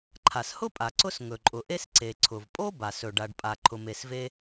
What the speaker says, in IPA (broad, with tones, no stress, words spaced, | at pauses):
ǃʰa˩shʊ˥pʼa˩ ǀʊ˥s ŋɵ˩ǃʼʊ˩ʔe˥s ǀe˩ ǀʰʊ˩vpʼo˥ba˩sɵ˩ɖ a˩ɖpʼa˩ ǃʰʊ˩me˩sve˥